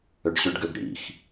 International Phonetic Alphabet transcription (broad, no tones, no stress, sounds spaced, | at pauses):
ø ɖ ɕ ʏ ɖ ɡ ø ɡ ɽ ḭ x